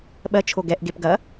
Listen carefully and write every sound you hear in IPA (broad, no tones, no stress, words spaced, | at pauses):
ɓɜt͡ʃʰo ɡɛʔɡep ɡɐ